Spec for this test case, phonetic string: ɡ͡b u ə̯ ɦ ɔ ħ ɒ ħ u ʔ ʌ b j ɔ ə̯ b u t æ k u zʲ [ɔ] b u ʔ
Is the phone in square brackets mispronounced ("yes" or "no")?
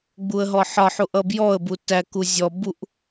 no